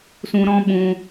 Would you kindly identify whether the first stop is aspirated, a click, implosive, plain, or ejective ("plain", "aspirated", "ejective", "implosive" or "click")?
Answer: implosive